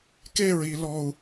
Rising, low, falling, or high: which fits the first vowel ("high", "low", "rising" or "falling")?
falling